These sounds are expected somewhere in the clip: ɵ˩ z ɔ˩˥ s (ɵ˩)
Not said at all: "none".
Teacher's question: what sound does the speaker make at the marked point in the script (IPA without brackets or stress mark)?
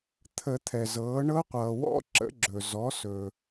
ɵ˩